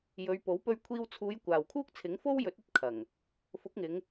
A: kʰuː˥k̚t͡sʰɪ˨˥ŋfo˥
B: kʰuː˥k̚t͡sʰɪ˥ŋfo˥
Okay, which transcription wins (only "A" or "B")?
A